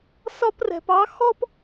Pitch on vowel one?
high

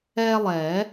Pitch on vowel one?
high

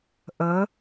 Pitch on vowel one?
rising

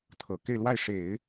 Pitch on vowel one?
low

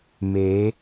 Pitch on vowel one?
rising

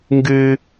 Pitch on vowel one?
high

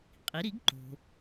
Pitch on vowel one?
rising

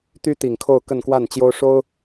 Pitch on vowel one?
high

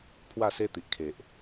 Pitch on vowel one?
falling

